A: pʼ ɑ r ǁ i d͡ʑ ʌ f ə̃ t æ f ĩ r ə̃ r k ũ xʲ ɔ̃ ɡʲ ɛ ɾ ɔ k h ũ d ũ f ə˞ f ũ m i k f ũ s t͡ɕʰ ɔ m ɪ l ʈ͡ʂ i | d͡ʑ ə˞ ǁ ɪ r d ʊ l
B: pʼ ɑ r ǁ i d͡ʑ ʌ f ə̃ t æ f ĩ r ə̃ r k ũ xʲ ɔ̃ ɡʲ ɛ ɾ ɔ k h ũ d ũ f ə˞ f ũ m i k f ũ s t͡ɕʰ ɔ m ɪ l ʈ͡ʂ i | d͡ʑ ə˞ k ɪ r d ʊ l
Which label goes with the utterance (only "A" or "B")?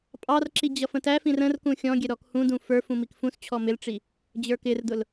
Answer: B